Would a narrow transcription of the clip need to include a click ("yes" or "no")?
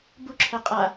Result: yes